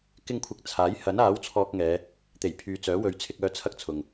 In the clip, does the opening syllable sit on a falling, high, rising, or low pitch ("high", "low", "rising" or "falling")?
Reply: high